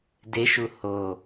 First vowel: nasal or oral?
oral